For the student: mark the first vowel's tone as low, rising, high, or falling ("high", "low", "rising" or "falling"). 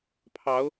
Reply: rising